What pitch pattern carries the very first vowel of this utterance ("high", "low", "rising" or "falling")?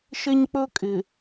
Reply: high